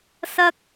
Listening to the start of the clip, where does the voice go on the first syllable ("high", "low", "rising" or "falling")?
high